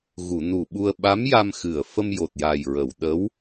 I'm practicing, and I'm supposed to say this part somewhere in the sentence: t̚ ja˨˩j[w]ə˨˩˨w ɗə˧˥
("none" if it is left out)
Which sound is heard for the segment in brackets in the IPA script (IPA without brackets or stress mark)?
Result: ɹ